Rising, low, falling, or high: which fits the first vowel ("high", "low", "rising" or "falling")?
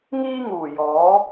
high